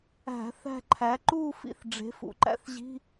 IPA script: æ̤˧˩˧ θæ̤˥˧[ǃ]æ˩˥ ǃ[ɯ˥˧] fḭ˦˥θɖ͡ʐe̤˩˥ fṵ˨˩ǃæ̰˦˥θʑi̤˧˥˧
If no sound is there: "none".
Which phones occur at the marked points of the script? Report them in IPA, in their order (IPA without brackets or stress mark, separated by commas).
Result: ǃʰ, u˥˧